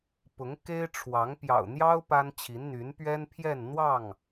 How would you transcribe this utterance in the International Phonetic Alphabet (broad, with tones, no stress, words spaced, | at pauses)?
pʊ˧˥ŋ ke˥ɪ̯ʈ͡ʂʰwɑ˧˥ŋ pjɑ̰˨˩ʊ̯n̪jɑ˥ʊ̯ pa˥nt͡ɕʰi˧˥n n̪y˧˥npɥɛ˥npʰjɛ˥˧n n̪wɑ˥˩ŋ